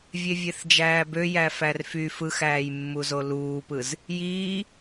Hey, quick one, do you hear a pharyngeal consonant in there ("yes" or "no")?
no